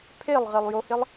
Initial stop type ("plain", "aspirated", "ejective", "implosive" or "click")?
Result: aspirated